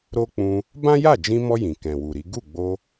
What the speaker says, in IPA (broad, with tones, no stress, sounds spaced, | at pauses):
ɾ o˦ k͡p ũ˧ | b ã˦ j a˦˨ d͡ʒ ĩ˧ m ɔ˧ j ĩ˨ k ɛ̃˨ w u˨ ɾ i˨˦ ɡ u˦˨ ɡ͡b o˧